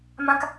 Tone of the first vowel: high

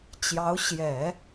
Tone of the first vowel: rising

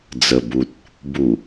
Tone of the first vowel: low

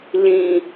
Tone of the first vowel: high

